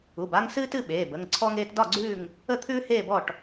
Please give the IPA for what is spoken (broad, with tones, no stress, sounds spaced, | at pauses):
u˩˧˩ b a˦ ŋ s ɨː˦ t ɨ˦ ɓ eː˩˧˩ b ə˩˧˩ ŋ ǀʰ ɔ˦ ŋ eː˦ t d ɒ˦˨ ɡ͡ǀ ʉː˦˨ ŋ | ə˦˨ t̪ʰ ʉː˦ h eː˦˨ b ɔ˦˨ ʈ